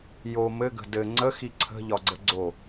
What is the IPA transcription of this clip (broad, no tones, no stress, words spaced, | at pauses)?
jo mɘɡə̤ dɘ ŋ͡ǀəxi ǀʰə̤ʎɒɡ͡ǀə ɡ͡ǀo